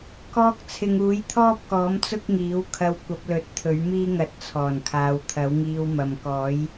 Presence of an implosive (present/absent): absent